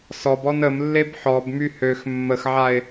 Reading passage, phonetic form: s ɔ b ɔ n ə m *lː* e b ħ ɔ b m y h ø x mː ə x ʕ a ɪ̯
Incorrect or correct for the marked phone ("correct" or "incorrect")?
correct